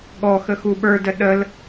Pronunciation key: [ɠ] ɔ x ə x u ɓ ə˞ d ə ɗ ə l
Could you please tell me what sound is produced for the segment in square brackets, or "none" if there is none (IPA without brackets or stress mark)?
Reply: ɠ